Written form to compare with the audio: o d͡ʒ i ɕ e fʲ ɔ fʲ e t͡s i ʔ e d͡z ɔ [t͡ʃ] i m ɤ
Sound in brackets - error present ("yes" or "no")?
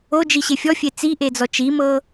no